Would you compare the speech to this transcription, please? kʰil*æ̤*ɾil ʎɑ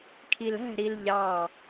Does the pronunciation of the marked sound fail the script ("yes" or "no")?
no